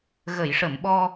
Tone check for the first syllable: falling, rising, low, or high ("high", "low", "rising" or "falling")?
low